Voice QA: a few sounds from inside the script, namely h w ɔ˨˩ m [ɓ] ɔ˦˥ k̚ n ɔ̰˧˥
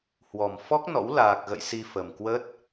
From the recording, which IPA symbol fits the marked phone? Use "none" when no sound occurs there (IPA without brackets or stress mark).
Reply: f